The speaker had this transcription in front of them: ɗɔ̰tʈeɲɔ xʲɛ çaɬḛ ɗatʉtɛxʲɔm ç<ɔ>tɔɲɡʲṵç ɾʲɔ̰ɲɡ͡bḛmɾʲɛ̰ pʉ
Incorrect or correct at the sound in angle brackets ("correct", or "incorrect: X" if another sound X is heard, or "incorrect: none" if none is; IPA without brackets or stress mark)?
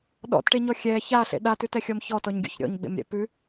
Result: correct